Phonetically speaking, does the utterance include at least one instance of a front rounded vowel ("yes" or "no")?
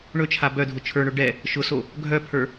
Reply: yes